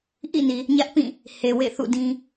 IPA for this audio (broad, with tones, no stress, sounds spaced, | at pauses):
ʔ ḭ˦˨ n i˨ | ɲ ä˦ ʔ p ĩ˦˨ | h e˨ w ḛ˦˨ θ ṵ˦˨ d ĩ˦